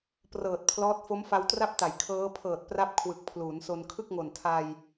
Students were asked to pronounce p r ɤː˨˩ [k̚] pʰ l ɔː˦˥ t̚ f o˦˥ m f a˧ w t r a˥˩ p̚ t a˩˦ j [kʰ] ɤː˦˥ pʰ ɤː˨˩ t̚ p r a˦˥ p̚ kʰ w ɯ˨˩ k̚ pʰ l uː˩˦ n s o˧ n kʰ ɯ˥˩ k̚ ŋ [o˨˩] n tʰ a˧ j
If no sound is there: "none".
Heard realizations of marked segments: t̚, kʰ, o˨˩

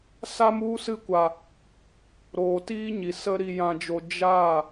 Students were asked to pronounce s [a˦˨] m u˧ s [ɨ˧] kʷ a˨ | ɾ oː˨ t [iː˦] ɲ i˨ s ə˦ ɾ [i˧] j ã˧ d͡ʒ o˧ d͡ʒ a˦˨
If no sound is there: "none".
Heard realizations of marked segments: a˧, ɨ˧, iː˦, i˧

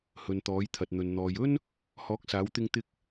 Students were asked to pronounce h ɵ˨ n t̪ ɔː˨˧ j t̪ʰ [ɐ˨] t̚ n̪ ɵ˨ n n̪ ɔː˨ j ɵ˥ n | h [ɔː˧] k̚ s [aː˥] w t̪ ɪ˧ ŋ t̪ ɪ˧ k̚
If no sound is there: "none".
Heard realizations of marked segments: ɐ˨, ɔː˨˥, aː˨˧

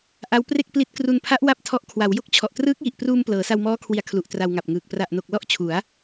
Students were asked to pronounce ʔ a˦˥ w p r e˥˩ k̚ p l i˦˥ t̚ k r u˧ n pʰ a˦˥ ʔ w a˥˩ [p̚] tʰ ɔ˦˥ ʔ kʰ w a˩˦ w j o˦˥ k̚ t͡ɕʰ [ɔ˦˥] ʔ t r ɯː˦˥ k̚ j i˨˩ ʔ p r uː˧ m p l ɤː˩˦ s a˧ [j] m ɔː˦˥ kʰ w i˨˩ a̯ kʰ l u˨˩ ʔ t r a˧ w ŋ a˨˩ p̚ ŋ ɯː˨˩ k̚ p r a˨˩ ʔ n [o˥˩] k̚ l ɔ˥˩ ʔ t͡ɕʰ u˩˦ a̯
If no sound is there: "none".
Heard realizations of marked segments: p̚, ɔ˨˩, w, o˨˩

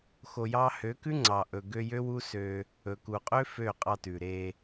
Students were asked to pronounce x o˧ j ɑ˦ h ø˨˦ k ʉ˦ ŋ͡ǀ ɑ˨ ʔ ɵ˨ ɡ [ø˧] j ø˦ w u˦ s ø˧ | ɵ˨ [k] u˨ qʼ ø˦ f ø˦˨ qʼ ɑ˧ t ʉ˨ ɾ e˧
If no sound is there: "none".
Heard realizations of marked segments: ø˧, k

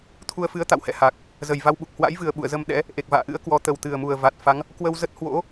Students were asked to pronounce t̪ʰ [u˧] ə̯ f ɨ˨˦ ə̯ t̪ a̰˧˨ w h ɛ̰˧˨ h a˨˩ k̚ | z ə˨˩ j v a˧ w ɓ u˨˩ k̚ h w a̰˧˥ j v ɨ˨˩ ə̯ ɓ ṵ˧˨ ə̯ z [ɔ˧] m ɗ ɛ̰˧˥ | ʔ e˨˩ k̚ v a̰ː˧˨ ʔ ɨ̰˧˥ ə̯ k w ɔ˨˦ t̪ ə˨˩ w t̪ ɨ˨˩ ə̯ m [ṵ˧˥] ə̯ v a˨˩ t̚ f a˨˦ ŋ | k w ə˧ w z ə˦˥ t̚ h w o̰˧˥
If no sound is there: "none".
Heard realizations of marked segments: u˧, ə˧, u˨˩

